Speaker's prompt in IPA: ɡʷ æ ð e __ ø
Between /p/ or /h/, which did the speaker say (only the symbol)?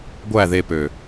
p